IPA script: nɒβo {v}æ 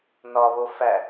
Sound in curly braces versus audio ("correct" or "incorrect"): incorrect